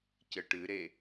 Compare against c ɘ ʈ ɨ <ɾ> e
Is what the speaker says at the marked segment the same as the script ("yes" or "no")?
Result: yes